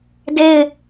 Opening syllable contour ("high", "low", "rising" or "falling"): falling